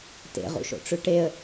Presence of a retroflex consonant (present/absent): present